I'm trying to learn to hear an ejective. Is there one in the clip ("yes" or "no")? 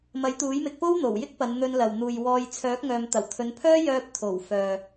no